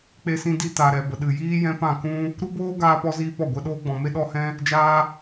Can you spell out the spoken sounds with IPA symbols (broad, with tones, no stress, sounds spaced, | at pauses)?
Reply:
k͡p e˧ s ĩ˧ d i˧ t a˨ ɾ ɛ˨ b ə˨ ɗ ɨ˨ j iː˦ j ɛ̃˦ p ã˦˨ k ũ˦ | ɾ u˦ b oː˦ ɡ aː˧ p ɔ˦ z iː˦ p ɔ˦˨ ɡʷ ɛ˧ ɗ oː˦ ɡ͡b ɔ̃˨ m e˧ ɗ ɔ˦ h ɛ̃˦ | d͡ʒ aː˦